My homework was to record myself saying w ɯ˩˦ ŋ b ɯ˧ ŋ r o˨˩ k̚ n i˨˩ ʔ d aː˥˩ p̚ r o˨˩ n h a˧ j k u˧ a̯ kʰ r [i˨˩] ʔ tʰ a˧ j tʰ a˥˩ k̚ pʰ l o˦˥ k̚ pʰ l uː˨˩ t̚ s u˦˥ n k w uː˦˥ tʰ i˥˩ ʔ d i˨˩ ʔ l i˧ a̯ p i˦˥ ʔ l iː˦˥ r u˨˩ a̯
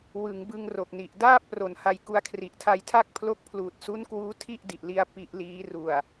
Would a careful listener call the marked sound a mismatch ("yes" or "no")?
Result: no